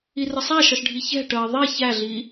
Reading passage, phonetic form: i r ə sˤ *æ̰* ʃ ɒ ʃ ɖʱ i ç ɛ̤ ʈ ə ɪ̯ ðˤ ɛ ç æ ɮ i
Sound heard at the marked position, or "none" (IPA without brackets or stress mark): æ